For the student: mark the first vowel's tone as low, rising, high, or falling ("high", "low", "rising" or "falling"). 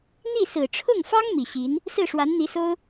falling